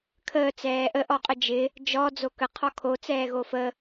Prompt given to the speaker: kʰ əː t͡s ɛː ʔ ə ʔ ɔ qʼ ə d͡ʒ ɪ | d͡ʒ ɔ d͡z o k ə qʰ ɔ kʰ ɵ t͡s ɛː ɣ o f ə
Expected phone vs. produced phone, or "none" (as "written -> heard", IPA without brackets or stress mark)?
ɵ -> o